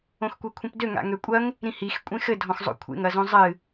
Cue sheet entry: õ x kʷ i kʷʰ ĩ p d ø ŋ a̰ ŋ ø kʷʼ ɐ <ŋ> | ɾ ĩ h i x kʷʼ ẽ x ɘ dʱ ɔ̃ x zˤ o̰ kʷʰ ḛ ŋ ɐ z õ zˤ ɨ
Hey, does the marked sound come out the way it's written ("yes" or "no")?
yes